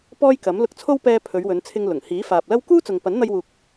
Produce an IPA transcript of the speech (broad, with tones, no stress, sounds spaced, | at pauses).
p ɔː˥ j k ɐ˨˥ m l ʊ˧ k̚ t͡sʰ o˥ w p ɛː˧ pʰ ɵ˨˧ ɥ w ɵ˨˧ n t͡sʰ ɪ˧ ŋ l ʊ˨˩ ŋ h iː˨˥ f aː˨ p̚ l ɐ˥ w k uː˥ t͡s ʊ˨ ŋ p ɐ˨˥ n n̪ ɐ˧ j w uː˨ k̚